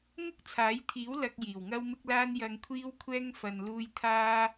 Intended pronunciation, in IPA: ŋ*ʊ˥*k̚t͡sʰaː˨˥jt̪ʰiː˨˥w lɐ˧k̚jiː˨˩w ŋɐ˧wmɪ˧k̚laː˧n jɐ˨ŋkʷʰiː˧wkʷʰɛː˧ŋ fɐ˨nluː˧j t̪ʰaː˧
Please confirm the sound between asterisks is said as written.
yes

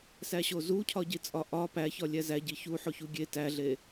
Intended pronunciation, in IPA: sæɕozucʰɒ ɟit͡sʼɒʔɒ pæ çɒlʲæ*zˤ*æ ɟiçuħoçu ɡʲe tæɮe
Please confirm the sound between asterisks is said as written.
no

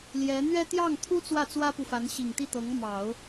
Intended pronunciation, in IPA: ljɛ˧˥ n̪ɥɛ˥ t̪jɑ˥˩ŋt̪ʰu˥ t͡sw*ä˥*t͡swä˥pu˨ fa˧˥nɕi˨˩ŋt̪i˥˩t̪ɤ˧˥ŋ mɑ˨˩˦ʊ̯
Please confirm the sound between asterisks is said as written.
no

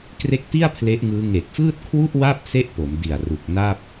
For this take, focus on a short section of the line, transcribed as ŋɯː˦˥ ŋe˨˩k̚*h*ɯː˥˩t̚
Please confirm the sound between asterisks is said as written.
no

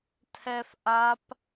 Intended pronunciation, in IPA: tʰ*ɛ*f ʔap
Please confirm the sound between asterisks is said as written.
yes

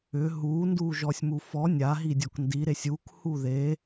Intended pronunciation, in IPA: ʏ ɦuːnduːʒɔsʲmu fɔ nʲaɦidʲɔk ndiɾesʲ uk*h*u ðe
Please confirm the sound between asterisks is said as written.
yes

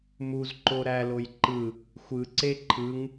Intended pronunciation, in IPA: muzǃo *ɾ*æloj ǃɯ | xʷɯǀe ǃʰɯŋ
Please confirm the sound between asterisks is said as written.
yes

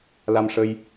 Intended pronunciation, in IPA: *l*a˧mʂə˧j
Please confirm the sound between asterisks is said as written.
yes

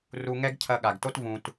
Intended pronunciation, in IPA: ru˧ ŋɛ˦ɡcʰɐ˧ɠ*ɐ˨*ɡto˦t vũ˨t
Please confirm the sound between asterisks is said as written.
no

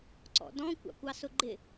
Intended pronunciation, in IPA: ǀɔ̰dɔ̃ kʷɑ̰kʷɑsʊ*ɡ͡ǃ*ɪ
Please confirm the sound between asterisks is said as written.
yes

